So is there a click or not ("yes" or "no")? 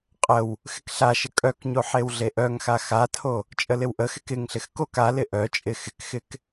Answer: no